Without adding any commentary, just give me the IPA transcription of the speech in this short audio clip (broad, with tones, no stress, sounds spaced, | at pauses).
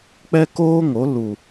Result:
k͡p ɛ˦ k oː˦ ŋ o˨˦ l u˨